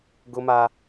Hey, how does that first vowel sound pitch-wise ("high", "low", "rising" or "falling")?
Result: high